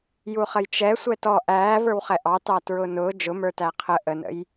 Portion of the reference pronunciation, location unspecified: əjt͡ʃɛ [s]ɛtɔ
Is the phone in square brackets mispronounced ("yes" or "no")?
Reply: yes